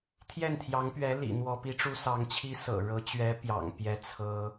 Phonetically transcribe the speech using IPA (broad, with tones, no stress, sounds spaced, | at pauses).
t̪ʰ j ɛ˥˩ n t̪ʰ j ɑ˧˥ ŋ p ɥ ɛ˧˥ l ḭ˨˩ n̪ w ɔ˧˥ p i˧˥ ʈ͡ʂ u˥ s ɑ˧˥ ŋ t͡ɕʰ i˥ s ɤ̰˨˩ ɻ ɤ˧˥ t͡ɕ ɥ ɛ˧˥ p j ɑ̰˨˩ ŋ p j ɛ˥ t͡sʰ ɤ˥